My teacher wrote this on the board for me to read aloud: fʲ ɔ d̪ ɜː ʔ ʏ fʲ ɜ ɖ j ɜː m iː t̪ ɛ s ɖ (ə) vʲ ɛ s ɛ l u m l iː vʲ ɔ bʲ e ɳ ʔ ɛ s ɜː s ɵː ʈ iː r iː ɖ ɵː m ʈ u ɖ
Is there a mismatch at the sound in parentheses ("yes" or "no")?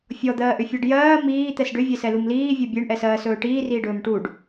yes